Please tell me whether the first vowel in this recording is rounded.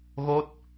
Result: yes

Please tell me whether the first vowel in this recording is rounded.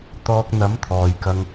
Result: yes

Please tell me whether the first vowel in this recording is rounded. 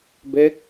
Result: no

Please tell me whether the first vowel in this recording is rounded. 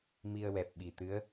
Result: no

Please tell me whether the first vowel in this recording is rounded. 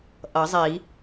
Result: no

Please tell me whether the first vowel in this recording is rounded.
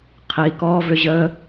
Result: no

